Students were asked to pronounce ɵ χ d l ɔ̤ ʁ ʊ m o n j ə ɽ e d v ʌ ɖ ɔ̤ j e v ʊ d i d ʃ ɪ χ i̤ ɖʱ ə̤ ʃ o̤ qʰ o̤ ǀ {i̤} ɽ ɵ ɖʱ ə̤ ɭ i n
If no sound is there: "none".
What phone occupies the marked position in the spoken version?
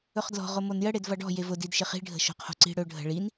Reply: i̤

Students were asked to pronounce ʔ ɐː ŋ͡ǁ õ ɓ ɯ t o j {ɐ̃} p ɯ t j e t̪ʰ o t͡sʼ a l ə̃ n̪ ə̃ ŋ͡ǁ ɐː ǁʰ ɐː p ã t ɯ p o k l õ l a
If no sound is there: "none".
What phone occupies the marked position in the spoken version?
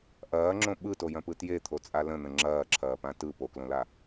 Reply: ɐ̃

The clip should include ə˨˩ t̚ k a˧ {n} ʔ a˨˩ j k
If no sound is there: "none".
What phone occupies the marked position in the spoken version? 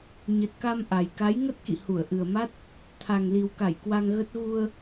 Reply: m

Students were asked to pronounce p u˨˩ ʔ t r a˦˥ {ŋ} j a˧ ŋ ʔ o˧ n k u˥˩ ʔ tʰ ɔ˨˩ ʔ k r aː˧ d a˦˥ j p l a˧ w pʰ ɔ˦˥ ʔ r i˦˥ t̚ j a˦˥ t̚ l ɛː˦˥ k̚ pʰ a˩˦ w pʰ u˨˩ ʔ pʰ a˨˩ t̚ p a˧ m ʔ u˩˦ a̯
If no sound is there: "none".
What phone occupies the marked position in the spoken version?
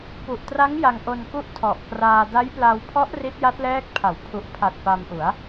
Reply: ŋ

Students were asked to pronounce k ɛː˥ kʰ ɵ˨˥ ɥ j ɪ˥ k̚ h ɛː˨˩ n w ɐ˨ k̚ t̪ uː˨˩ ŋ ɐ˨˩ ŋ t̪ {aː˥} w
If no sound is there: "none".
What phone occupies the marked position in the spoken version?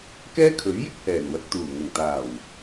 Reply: aː˨˩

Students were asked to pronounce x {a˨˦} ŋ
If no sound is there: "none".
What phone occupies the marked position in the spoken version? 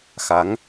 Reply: a˨˦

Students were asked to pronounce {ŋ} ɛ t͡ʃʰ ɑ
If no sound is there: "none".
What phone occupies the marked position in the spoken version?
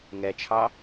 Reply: ŋ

